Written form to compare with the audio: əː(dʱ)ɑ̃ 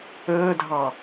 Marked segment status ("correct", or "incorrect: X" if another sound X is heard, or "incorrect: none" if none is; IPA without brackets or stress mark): correct